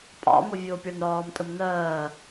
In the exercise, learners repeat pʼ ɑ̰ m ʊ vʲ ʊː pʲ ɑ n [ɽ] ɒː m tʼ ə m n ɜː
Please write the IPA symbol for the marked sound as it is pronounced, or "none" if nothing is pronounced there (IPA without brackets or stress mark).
ɽ